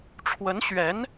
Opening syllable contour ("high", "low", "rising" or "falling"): rising